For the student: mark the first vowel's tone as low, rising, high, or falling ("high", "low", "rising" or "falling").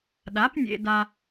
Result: rising